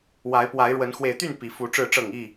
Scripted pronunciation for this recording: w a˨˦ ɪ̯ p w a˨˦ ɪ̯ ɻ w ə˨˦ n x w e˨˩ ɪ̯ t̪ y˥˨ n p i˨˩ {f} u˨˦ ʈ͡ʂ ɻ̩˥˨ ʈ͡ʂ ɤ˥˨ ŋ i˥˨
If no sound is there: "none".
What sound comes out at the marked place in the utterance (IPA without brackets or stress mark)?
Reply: f